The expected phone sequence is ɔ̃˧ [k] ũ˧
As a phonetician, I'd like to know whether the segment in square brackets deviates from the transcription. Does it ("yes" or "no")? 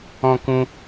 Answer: no